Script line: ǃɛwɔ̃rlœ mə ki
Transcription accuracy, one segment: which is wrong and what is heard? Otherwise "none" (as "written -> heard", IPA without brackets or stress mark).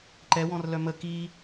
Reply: none